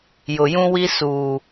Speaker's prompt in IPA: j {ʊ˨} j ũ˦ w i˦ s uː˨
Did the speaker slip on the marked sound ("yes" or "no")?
no